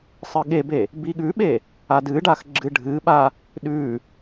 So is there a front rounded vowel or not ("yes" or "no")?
no